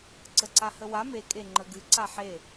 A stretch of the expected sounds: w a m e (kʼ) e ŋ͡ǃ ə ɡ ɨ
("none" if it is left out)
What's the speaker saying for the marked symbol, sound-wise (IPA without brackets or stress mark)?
kʼ